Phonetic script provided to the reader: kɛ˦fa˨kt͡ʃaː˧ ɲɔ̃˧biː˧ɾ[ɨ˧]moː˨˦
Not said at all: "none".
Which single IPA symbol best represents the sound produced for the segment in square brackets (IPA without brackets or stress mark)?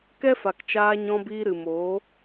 ɨ˨